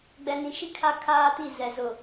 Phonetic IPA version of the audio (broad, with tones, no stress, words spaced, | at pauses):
ɡ͡bɛ˨nĩ˨ʃi˦ kʰa˦kʰaː˦ti˦˨ zɛ˨zʊ˨